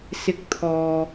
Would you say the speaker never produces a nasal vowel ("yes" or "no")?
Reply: yes